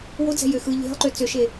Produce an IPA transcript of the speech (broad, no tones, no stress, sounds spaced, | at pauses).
w o d͡z ɛ̤ j ø x ɯ ʎ e̤ lˠ ǃ ø t͡s ø ʃ e